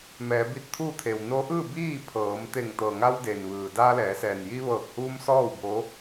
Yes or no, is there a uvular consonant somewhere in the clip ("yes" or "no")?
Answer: no